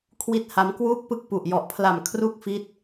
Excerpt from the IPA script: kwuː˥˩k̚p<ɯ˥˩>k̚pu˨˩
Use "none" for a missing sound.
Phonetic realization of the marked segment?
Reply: ɯ˥˩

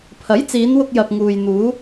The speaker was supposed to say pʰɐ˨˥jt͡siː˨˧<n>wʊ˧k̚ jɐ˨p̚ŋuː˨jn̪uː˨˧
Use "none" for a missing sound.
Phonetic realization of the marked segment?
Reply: n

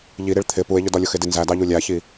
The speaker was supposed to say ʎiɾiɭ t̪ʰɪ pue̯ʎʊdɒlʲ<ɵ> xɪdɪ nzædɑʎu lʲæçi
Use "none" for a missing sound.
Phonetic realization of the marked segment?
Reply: ʊ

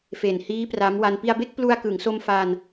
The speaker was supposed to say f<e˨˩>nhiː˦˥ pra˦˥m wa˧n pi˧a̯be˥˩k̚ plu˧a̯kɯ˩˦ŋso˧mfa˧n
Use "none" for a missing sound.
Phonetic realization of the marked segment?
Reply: e˨˩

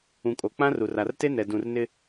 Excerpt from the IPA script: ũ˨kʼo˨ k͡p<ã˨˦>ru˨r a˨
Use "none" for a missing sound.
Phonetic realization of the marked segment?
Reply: ã˦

